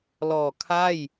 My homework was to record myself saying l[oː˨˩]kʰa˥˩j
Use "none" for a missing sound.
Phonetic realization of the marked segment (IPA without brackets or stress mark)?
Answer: ɔː˨˩